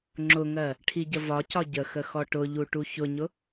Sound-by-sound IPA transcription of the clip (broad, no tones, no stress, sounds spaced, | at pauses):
ŋ͡ǁ ʊ ŋ ɜ | ʈʰ i ɟ ə v ɒ c ɒ ɟ ə x ə x ɔ ʈ ʊ ʎ u ʈ u ç ʊ ɲ ʊ